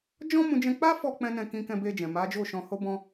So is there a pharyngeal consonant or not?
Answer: no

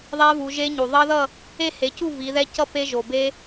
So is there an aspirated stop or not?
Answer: no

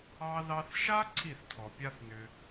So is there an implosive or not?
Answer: no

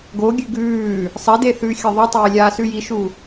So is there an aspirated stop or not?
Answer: no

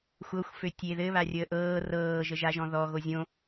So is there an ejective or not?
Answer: no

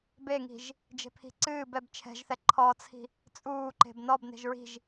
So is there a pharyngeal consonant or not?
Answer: no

